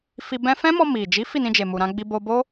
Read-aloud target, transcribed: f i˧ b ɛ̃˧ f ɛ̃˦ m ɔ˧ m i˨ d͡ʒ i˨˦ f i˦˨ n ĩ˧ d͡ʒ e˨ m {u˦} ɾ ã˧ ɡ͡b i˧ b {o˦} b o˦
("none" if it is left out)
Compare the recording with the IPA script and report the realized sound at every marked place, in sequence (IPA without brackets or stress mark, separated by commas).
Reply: u˨, o˧